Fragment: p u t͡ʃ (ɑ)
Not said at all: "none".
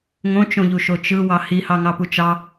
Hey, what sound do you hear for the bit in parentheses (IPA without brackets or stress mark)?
ɑ